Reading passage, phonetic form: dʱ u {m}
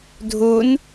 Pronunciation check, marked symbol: incorrect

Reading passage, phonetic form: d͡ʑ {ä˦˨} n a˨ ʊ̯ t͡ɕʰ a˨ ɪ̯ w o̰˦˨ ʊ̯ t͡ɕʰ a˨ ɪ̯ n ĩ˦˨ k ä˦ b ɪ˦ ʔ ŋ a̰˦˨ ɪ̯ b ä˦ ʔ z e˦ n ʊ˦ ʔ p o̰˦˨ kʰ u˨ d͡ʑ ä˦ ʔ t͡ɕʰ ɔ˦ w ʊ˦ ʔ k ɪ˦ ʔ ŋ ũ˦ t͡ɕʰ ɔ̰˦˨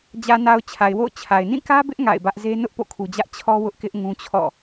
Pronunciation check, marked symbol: incorrect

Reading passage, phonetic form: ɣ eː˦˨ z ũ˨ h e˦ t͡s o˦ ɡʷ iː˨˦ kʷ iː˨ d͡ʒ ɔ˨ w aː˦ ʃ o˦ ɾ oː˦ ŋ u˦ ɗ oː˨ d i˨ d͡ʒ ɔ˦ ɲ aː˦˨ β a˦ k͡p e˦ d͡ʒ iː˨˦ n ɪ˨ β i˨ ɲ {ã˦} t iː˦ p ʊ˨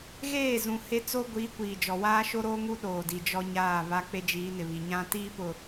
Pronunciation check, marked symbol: correct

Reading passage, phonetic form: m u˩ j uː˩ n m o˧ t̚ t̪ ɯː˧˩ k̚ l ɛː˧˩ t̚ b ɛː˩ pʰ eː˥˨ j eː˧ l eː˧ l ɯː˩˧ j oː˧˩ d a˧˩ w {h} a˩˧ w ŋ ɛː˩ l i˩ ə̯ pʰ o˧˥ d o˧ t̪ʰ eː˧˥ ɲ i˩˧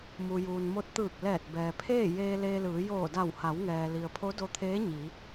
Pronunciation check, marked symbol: correct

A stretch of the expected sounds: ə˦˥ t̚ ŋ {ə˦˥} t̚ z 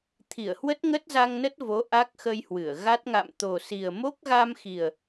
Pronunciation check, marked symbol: correct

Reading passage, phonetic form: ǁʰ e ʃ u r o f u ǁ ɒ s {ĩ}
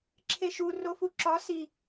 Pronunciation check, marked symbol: incorrect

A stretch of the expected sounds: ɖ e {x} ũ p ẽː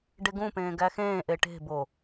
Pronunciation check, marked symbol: incorrect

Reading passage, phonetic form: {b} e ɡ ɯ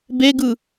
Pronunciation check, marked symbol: correct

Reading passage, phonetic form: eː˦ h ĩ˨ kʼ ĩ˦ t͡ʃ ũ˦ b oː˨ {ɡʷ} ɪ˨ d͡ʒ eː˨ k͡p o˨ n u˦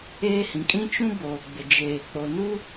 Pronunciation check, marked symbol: incorrect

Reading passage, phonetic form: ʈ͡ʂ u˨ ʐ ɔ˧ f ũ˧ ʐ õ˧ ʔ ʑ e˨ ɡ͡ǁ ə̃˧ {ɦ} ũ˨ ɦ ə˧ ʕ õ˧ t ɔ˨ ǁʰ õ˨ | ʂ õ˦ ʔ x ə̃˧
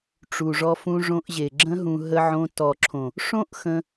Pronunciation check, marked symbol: correct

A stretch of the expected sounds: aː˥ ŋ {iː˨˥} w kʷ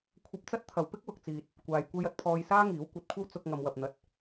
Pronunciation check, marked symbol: correct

